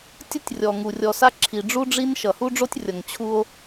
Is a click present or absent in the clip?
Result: present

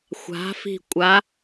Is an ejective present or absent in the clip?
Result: present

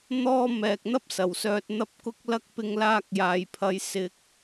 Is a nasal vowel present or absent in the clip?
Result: absent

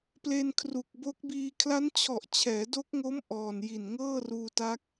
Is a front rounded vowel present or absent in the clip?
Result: absent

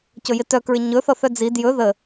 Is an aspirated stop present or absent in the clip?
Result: absent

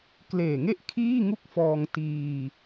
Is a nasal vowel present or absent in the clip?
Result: absent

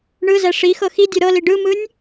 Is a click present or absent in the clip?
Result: absent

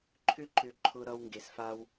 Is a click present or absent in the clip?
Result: present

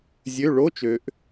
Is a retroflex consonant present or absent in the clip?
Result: present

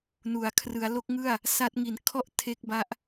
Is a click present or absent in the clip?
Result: absent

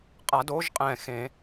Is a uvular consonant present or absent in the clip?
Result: present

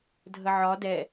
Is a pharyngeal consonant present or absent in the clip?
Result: present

